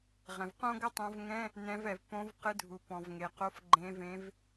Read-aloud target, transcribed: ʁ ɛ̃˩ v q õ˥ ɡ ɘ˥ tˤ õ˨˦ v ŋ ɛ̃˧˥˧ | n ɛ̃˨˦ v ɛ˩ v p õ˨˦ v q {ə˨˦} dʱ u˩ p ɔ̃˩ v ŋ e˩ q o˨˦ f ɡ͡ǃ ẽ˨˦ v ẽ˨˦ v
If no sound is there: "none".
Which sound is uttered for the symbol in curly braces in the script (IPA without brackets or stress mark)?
ɨ˨˦